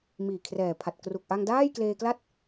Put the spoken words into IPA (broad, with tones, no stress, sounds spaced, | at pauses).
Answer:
m iː˨˩ kʰ r ɛː˨˩ pʰ a˨˩ t̚ k r u˨˩ k̚ ʔ a˧ ŋ d aː˥˩ j k l eː˧ k l a˥˩ t̚